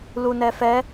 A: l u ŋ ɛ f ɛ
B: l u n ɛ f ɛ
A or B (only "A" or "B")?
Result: B